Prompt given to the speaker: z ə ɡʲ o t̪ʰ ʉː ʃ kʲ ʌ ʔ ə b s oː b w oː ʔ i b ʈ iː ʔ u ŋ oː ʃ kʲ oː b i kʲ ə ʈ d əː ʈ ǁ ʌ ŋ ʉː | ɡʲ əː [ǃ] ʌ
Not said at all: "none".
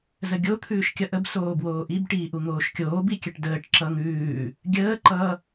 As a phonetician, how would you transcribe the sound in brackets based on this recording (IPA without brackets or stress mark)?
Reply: ǃ